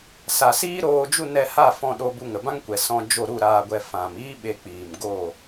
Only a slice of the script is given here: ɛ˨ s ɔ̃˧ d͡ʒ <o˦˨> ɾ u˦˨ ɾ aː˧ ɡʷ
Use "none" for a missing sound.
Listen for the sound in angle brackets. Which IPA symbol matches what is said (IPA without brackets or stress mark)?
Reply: o˦˨